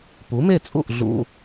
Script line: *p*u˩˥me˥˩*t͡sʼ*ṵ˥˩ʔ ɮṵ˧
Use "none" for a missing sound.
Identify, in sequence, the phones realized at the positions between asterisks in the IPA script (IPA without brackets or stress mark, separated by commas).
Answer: p, t͡sʼ